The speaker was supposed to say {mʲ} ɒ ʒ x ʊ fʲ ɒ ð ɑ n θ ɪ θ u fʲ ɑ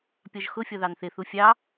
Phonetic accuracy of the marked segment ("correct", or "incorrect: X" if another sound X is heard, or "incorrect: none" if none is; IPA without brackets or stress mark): incorrect: pʲ